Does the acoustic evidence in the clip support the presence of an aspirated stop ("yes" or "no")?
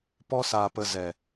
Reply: no